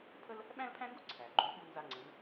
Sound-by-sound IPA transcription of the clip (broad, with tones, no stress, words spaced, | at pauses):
pʰə˥l | ɓæ̃˥lpʰæ̃˥ŋɡu˥ ǀʰæ˩ ɡ͡ǃu˧˥ɓu˥nza˥ŋ͡ǀə˧˥n